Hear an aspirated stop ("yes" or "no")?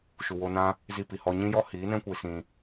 no